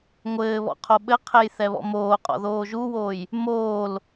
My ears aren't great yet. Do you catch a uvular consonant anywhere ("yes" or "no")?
yes